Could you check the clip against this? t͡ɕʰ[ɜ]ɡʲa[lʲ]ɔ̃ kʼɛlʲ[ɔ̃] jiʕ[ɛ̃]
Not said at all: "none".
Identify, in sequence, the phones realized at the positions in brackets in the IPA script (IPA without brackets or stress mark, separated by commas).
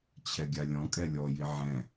ɛ, lʲ, ɔ, ɛ̃